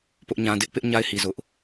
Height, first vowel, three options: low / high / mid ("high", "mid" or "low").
high